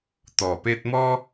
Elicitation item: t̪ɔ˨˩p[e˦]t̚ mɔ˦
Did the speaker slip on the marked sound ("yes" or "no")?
no